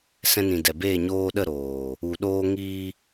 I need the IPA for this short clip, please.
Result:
s ɛ̃˧ n ĩ˨ d ɛ˨ b eː˦˨ ɲ oː˧ ɗ ə˦˨ ɾ oː˨ | u˨ ɗ oː˧ ŋ iː˧

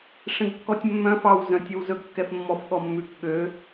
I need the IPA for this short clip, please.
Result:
ʂ ẽ ɡ kː ɔ tʲ mː œ̃ f ɑ w z œ̃ tʲ o w z ɵ ɡ kː ɛ f mː ɔ f ɠ ɔ mː ʉ k ɠ ø

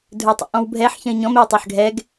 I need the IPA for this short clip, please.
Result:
dʱ ə˞ tˤ ḛ ʔ ɔ̃ w bʱ ɛ ħ ç ə̃ i̯ ɲ ɔ̃ m ɛ w tˤ ə˞ ħ ɡʱ ɛ ɡ

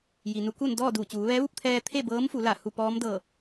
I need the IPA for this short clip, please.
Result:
j i˩ n u˧˥ k u˥˨ n d ɔː˥˨ d uː˧˩ t͡ɕ uː˩˧ ʋ ɛː˧˥ ʋ u˥˨ p̚ t̪ʰ ɛː˧ t̪ʰ e˥˨ b ɤː˧˥ m f u˩˧ l a˧˩ h u˥˨ p ɔː˧˥ m d ɤː˧˩

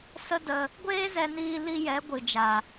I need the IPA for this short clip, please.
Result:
s ə˦ d ə˧ | ɡʷ eː˦ z ɛ˧ n iː˧ l i˧ j ɛ˨˦ ɡʷ ɨ˨ d͡ʒ a˨

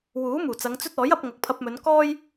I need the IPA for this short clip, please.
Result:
w uː˨˥ m uː˨˩ t͡s ɐ˨˧ ŋ t͡s ɵ˥ t̚ ɔː˨˥ j ɐ˧ p̚ ŋ ɐ˨ k̚ pʰ ɐ˧ p̚ m ɵ˨˧ n k ɔː˥ j

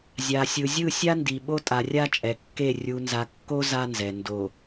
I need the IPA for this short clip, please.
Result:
zʲ a˨ sʲ ɯ˨ zʲ ɯ˦˨ sʲ a˦ n d i˨ ɓ o˦ tʼ a˨ rʲ a˦ t͡ʃʼ ɛ˨ kː e˦˨ rʲ u˨ n z a˨ kː o˦ z a˦ n z ɛ˨ n d o˨

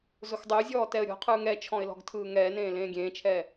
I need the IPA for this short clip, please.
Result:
z ʊ x dˤ ʊː zʲ ɔː t ɛ ə̯ ɾʲ ɔ̤ qʰ ɯː ŋ ɛ t͡ʃʰ ɔ̃ ɪ̯ l ɔ̤ ɡ tʰ ɯː ŋ ɛː n ẽː l ẽː ɡʲ ẽː t͡ʃʰ ɛː

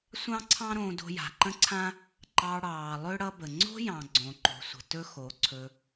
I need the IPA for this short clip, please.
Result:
sʷ ɑ̃˦ ǀʰ ɑ̃˦ ɾ õː˧ d o̤˧ j a̤˨ ǃ ə̃˦ ǀʰ ã˦ | ǃ ɑ˧ ɽ ɑː˨ lˠ ɵ˦ ɽ ʌ˦ b ə˨ ŋ͡ǀ o̤˦ j ɑ̃˨ ɡ͡ǀ õ˨ ǃ o̤˨ sʷ ə̤˨ t ɵ˦ x o˨˦ ǀʰ ɵ˧

